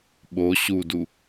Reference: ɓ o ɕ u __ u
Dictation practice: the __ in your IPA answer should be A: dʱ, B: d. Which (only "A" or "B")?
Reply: B